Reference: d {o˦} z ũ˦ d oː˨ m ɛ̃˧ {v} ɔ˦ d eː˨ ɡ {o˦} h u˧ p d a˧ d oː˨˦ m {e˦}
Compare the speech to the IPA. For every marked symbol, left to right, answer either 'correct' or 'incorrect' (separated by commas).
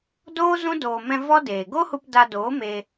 incorrect, correct, correct, incorrect